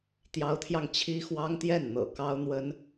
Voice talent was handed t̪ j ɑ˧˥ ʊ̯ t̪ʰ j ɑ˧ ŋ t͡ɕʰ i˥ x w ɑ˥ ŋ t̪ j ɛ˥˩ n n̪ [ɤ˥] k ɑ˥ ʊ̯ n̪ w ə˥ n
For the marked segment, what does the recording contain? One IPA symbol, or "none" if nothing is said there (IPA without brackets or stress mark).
ɤ̰˨˩